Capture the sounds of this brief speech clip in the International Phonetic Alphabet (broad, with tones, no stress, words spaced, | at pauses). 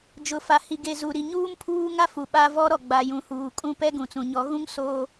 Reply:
d͡ʒʊ˨fa˨hi˨ɡe˨ zu˨ɾi˨ ɲuː˦mpʰuː˦ŋa˦fu˨ ɓa˦ vɔ˦ɾɔ˨ ɡ͡ba˨ jũ˨huː˨kʼũ˦ pɛ˦ɡũ˨t͡sũ˨ ɲɔ˨˦ɣũ˦ŋ soː˦